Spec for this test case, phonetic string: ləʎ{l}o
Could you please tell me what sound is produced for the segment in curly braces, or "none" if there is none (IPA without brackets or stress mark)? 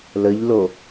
l